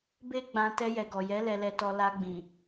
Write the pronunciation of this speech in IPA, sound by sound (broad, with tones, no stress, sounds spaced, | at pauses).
b e˦ ɡ͡b ã˧ t ɛ˧ j ɛ˨ ɡ ɔ˨ j ɛ˨˦ l ɛ˧ l ɛ˧ t ɔ˧ l a˧ ɡ͡b ĩ˨